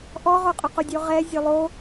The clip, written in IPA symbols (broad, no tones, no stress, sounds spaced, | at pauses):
ʔ ɔ ʁ o qʼ ʊ q o dʲ o ʁ ɛ zʲ o lˠ o